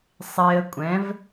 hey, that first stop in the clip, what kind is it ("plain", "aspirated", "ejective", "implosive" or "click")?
ejective